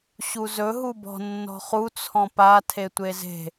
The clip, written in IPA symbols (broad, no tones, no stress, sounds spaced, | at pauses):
ɕ u z ɵ ɦ u b ɔ̤ nː ɔ̤ χ u t͡sʰ ɔ̃ p a tʰ e tʷ e z e̤